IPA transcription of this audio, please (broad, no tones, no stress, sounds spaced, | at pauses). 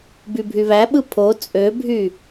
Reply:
b y bʱ y β æ ɓ ɯ pʰ o t͡sʼ ø bʱ y